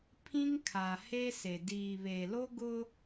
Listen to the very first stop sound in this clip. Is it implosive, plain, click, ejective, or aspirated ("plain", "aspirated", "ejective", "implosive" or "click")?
aspirated